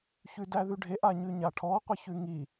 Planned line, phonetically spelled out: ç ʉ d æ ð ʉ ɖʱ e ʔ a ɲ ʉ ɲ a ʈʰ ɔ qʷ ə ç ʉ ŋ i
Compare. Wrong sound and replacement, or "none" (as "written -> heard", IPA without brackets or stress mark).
none